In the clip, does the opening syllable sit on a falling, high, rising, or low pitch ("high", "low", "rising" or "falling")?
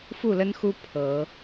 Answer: falling